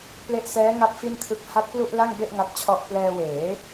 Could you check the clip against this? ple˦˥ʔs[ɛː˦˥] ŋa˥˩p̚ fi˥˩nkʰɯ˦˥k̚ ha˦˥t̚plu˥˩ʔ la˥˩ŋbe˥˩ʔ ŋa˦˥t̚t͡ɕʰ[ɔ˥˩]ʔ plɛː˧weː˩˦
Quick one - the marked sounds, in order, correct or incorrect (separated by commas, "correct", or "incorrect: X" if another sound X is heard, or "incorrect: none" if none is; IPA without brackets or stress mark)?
correct, correct